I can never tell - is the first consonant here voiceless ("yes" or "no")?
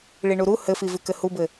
no